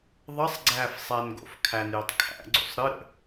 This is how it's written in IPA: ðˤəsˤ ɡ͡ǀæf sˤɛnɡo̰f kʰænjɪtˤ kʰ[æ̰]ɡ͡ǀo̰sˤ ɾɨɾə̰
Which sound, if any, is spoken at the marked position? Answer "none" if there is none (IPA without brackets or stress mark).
æ̰